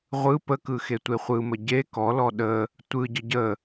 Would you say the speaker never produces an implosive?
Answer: no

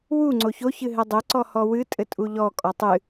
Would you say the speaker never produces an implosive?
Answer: yes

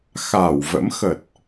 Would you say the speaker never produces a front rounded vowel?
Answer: yes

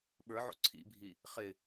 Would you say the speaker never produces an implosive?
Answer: no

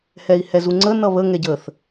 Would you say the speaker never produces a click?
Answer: no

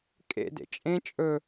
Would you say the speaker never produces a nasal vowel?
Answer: no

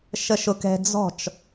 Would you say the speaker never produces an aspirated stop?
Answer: yes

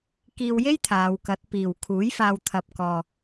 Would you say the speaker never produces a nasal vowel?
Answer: yes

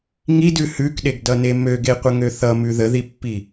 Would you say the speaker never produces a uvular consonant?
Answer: no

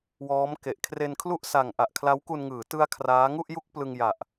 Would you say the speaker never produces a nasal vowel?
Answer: yes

